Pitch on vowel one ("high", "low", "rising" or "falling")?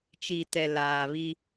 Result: low